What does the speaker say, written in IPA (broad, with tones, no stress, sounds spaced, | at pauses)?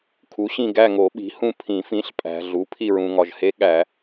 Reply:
kʰ u˩˥ ɕ ĩ˦˨ ɡ æ˦˨ ŋ o˨˩˦ ɓ i̤˩˥ h ũ˦˨ pʰ ĩ˨˩˦ f ĩ˩˥ ɬ pʼ æ̤˨ ɮ u˩˥ pʰ i˦˨ ɹ ũ˨ ŋ ɒ˨ ʒ h e˧˥ ɠ æ˨˩˦